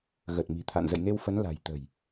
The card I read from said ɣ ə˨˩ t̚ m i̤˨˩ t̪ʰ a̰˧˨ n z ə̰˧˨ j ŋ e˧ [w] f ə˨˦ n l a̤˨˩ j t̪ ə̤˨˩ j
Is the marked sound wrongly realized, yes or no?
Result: no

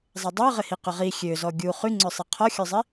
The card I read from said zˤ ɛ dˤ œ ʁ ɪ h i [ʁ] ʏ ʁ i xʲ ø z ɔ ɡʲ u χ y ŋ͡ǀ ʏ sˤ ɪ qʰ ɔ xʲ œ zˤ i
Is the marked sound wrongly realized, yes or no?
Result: yes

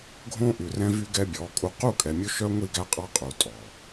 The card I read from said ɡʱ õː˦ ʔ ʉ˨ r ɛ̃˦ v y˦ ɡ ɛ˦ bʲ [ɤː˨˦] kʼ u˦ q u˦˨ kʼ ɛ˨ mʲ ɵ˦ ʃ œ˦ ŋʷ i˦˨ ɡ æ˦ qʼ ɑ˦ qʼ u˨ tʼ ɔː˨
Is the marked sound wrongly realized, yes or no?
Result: yes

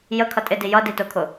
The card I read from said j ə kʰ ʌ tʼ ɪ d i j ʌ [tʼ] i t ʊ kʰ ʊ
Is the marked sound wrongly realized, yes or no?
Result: yes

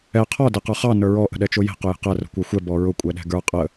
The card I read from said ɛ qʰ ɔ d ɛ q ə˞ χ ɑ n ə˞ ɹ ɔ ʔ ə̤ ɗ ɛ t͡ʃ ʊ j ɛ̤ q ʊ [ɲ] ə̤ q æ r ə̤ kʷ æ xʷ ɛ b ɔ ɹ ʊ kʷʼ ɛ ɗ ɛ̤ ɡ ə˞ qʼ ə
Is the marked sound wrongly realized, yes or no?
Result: yes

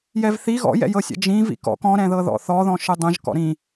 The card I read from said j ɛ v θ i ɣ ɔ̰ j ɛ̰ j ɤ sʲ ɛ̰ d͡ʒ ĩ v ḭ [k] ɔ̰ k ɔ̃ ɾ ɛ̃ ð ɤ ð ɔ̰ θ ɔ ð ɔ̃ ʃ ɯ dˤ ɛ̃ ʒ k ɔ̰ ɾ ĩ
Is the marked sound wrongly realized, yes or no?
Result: no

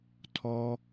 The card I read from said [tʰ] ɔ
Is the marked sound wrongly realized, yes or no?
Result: no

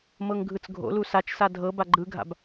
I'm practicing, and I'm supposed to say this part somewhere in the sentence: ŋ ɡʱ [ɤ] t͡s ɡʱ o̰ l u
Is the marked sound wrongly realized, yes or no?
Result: yes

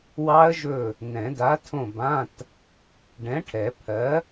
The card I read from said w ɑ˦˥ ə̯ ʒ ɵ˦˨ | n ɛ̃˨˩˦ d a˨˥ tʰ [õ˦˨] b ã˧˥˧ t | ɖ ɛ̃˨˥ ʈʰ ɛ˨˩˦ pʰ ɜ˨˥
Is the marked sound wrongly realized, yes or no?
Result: no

